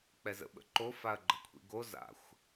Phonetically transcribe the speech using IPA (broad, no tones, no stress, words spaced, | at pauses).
k͡pɛzə̰ɓə̰ǃo faɐ̯ɡ͡ǃə̤kʷʰḭɡo za̰xʷ